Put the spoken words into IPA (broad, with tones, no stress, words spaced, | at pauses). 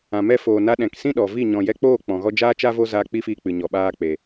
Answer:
ã˨mɛ˧foː˨na˧ ɗɛ̃˨ksĩ˦ ɗɔ˨vi˦˨ ɲɔ̃˨jɛ˧k͡poː˦˨ k͡pɔ̃˨ɣɔ˧d͡ʒaː˦t͡ʃa˦ vo˦ zaː˧k͡pi˦fiː˧k͡pɨ˨ ɲɔ˨ ɓaː˧k͡pe˨